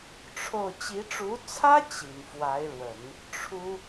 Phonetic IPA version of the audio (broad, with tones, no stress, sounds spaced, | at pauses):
ʈ͡ʂʰ o˥˩ ʊ̯ t͡ɕ i˧˥ ʈ͡ʂ u˧˥ t͡sʰ ä˥ t͡ɕ i˨˩ n f w a˧˥ ɪ̯ ɻ w ə˨˩˦ n | ʈ͡ʂʰ u˥